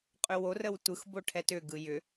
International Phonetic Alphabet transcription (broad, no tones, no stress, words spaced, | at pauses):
qʼʏworəw tʷɯxbo ʈʰɛtʏɡɯ jʏ